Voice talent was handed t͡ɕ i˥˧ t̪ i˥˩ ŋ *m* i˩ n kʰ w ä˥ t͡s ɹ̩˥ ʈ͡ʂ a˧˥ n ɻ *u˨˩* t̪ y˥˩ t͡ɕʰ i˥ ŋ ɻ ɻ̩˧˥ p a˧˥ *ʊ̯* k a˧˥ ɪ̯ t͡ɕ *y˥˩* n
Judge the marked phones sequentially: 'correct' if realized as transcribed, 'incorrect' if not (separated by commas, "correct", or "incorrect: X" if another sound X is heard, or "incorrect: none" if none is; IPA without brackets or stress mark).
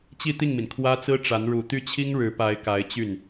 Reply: correct, correct, incorrect: ɪ̯, correct